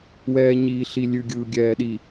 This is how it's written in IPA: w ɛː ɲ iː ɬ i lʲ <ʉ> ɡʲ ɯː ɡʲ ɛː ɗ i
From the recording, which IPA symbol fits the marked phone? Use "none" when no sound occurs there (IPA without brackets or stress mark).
ʉ